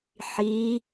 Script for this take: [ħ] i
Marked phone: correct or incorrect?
correct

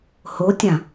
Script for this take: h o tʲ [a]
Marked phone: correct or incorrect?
incorrect: ã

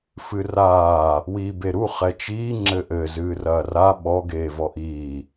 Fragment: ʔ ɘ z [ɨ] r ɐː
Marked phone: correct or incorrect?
incorrect: ɨː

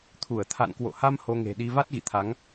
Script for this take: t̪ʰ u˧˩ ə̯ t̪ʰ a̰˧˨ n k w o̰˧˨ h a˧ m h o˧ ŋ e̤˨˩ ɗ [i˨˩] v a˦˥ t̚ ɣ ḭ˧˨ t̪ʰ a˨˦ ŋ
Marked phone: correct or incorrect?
incorrect: i˧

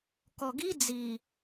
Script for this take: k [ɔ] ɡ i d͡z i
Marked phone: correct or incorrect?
correct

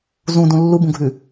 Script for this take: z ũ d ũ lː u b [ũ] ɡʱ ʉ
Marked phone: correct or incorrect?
correct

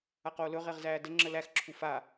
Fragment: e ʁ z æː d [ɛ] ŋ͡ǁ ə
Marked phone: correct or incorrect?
incorrect: ə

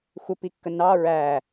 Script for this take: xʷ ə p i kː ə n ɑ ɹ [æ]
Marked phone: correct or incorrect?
correct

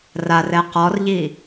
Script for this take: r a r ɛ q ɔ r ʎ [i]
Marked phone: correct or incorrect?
correct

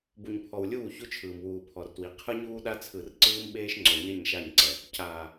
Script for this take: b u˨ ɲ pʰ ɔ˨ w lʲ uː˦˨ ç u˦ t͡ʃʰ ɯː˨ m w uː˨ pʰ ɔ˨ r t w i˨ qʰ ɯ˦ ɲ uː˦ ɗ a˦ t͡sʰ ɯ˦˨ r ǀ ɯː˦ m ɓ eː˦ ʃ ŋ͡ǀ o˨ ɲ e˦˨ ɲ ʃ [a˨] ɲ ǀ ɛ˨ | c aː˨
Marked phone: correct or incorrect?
incorrect: a˦˨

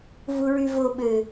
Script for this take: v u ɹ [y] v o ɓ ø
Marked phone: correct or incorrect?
correct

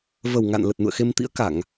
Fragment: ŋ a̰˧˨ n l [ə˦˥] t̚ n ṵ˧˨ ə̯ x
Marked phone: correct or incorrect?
incorrect: ə˨˩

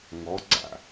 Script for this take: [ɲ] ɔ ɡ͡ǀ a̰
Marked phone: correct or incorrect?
incorrect: ŋ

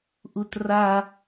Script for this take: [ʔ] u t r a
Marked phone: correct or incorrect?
correct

